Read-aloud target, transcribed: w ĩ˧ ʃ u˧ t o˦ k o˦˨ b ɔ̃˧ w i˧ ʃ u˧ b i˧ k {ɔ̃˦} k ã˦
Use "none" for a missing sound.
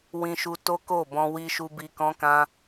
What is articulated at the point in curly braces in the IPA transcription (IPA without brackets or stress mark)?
ɔ̃˦